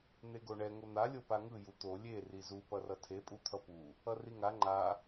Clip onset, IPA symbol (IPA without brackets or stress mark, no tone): n̪